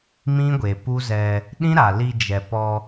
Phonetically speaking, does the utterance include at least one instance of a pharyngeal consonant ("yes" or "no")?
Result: no